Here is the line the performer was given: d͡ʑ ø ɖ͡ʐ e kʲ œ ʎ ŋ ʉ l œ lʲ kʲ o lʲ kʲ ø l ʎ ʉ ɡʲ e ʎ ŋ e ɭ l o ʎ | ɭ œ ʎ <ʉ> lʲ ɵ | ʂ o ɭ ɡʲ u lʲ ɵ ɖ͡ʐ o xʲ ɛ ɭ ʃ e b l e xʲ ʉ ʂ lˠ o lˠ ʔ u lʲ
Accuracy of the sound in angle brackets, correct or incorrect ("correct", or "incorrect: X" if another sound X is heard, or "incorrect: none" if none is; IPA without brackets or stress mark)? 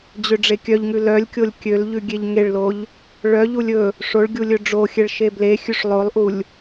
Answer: incorrect: u